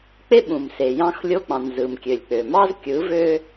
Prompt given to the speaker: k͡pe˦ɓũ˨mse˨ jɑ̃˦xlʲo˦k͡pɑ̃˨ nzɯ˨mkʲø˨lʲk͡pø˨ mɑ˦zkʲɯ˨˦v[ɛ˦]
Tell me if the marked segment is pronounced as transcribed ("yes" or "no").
no